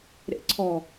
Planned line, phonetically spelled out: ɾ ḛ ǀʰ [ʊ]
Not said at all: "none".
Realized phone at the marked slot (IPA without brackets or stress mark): ɔ